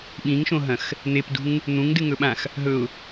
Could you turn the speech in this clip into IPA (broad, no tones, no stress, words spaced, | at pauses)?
ɓĩŋʃõɦɐ̃x | n̪epdṳŋ | n̪ũŋdɨŋɵɓãx | ɦɵʊ̯